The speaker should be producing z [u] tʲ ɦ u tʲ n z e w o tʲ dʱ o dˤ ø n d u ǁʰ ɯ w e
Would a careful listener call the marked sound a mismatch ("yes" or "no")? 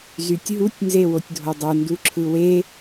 yes